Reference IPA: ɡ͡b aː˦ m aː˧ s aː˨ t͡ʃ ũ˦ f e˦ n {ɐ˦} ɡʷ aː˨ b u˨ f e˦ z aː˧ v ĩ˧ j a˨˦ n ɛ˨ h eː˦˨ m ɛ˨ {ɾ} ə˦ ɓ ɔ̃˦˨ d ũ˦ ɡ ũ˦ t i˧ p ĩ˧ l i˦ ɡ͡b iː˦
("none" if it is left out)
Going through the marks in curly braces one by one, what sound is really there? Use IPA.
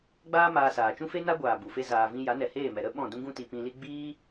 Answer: a˦, ɾ

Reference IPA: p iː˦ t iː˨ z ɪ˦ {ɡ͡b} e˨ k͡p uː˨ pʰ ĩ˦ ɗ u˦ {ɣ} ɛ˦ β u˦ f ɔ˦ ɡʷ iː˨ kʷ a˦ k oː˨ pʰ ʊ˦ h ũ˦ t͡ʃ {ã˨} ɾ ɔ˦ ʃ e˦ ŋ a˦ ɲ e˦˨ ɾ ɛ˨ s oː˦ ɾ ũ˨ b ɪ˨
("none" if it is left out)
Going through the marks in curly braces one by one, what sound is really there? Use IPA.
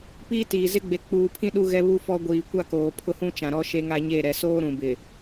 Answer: ɡ͡b, ɣ, ã˨

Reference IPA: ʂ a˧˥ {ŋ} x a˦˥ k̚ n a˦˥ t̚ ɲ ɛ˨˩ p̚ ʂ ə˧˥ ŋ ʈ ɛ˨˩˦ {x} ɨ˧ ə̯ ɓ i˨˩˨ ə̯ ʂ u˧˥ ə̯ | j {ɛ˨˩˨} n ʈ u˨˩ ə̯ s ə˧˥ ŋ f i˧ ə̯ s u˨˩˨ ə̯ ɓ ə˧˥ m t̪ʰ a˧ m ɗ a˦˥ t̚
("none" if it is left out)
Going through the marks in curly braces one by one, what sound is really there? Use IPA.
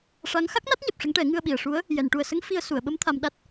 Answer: ŋ, ŋ, ɛ˨˩˨

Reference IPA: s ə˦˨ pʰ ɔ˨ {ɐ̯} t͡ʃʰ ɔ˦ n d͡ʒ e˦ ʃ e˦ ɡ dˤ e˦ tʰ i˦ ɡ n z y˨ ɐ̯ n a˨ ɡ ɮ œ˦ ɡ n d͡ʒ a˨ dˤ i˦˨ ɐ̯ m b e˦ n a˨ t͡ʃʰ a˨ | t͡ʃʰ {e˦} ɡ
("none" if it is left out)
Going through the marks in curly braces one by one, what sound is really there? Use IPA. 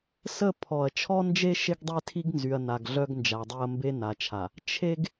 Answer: ɐ̯, e˦

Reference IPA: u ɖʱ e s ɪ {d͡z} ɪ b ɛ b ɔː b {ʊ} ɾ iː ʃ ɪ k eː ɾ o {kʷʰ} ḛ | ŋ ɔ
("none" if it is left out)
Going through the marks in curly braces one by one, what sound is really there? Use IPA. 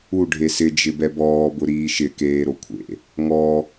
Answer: d͡ʒ, ʊ, kʷʰ

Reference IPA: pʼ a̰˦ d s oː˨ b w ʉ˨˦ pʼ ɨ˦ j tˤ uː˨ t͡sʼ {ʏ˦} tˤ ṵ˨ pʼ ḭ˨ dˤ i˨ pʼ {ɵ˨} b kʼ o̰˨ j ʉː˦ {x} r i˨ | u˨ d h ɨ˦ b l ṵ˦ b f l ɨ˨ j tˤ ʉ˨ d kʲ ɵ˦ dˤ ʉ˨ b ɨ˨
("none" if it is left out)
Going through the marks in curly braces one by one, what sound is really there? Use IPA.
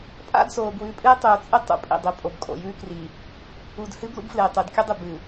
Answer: ɨ˦, o˨, k

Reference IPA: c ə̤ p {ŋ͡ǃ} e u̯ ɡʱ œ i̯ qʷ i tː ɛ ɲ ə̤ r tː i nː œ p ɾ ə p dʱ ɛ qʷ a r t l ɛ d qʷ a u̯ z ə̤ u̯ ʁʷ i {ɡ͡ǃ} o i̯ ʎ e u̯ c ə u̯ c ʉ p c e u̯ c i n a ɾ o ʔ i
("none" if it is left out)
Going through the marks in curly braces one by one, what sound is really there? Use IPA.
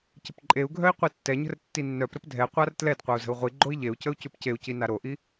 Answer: ǃʼ, ɡ͡ǃ

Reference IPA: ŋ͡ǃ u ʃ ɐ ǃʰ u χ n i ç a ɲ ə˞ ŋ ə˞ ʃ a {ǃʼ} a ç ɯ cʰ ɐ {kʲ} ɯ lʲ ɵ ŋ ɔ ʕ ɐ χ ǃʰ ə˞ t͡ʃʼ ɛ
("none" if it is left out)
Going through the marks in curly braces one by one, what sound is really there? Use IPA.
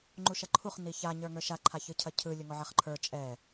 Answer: ǃʰ, cʰ

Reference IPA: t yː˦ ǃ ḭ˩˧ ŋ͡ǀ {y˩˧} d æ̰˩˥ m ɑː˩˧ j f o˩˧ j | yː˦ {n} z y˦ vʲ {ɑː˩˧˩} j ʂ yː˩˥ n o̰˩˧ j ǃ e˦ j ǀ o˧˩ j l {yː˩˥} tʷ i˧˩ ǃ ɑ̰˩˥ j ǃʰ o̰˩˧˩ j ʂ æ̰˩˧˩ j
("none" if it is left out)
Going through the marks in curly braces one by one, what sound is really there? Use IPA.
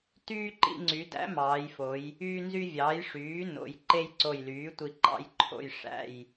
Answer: y˩˧, n, ɑː˩˥, yː˩˥

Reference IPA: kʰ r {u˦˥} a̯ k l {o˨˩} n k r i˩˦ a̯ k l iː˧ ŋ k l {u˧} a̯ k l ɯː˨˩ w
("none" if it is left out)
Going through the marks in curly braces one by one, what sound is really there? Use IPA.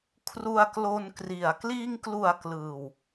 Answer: u˧, o˧, u˨˩

